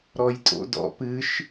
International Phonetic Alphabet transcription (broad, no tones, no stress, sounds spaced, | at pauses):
ɾ ɔ j tʼ o̰ d ɔ̰ p ɨ ʃ